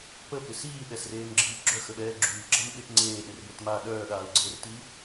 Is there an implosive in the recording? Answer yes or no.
yes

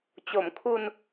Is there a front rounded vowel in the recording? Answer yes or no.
no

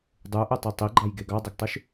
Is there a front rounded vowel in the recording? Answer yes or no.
yes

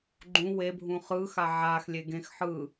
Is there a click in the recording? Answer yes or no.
yes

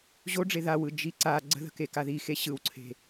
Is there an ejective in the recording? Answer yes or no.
no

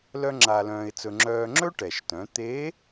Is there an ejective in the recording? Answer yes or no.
no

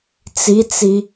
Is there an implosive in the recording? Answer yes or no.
no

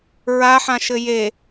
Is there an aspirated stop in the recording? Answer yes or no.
no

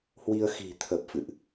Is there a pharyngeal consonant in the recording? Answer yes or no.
no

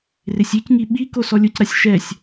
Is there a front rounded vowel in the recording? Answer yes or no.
no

